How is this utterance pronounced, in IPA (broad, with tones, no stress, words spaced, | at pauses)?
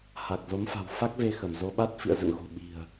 ha˨˩k̚zo˨˦mfa̤˨˩w fa˦˥k̚ve˧ xə˧˩mzo˨˦ɓa˦˥t̚ fḭ˧˨ə̯ zə̰˧˨nɣo̤˨˩ ɓi̤˨˩ə̯